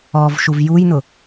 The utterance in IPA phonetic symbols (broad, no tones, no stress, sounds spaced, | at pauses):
ɔ v ʃ u v j u j n ʊ